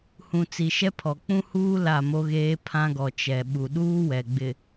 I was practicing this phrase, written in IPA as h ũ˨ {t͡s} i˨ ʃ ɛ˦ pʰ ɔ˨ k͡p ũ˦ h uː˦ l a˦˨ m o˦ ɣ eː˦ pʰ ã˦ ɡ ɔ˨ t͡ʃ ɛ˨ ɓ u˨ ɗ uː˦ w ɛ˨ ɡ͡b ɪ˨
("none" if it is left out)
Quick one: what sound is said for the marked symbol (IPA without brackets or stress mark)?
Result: t͡s